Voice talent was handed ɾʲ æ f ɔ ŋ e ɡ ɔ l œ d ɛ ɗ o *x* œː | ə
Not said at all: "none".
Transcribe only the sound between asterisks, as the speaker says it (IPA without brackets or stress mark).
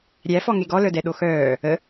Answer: x